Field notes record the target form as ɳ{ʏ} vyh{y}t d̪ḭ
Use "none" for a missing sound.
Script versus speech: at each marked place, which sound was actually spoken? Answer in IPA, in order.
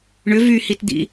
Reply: ʏ, i

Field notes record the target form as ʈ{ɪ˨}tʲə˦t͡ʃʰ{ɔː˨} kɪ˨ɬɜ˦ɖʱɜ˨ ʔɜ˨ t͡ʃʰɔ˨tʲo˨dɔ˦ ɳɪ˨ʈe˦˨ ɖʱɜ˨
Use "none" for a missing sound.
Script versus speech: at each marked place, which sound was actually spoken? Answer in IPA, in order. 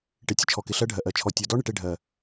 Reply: ɪ˨, ɔ˨

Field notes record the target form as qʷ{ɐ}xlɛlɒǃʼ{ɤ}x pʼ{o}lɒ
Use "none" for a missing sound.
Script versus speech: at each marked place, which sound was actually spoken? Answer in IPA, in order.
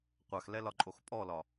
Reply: a, o, ɔ

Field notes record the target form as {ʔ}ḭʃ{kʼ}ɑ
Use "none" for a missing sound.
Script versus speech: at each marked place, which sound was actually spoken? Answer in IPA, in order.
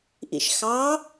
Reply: ʔ, x

